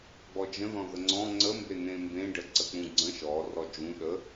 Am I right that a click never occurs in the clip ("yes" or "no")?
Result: no